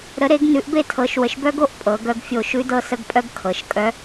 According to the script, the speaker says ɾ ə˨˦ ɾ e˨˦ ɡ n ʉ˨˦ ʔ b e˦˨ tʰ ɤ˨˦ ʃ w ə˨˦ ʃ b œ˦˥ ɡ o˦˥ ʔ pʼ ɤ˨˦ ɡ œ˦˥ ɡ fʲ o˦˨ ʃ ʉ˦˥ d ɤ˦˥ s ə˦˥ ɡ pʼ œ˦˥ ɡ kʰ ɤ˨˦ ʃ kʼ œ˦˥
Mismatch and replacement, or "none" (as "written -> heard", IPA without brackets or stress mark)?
none